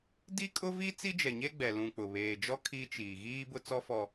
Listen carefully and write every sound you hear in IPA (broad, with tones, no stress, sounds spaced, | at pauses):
d i˦ kʼ ʊ˦ v i˦ t͡s i˦ d͡ʒ ɛ˨ ɲ e˦ ɡ͡b ɛ˨ l ũ˨ k͡p ʊ˨ β eː˨ d͡ʒ ɔ˦ kʰ i˦ t͡ʃ iː˨ ɣ iː˦ b ʊ˦ t͡s ɔ˦ f ɔ˨